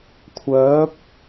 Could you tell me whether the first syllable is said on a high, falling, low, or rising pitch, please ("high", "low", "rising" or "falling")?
rising